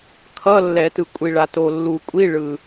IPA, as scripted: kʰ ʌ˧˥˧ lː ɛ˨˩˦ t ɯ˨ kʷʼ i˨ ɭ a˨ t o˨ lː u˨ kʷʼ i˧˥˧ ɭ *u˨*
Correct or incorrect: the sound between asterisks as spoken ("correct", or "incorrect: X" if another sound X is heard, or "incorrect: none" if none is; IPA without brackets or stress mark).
incorrect: ɯ˨